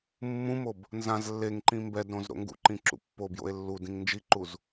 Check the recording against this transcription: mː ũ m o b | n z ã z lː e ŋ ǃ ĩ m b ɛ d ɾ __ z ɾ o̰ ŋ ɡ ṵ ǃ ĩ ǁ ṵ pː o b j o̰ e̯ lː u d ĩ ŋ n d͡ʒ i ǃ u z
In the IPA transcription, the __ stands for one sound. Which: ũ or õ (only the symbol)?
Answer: õ